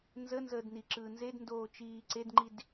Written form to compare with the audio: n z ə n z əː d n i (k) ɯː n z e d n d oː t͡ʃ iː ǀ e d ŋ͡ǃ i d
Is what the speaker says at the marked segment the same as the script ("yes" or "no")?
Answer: no